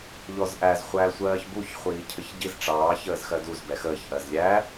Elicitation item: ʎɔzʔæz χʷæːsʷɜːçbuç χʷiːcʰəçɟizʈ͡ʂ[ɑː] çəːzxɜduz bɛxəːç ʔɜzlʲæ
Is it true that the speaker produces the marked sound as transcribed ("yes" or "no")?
yes